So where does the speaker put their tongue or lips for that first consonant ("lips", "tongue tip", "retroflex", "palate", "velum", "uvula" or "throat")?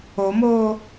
lips